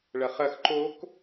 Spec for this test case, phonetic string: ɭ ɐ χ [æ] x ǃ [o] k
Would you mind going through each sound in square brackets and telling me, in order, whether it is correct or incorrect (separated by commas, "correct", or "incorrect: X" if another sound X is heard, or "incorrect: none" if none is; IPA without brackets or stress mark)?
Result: incorrect: ɐ, correct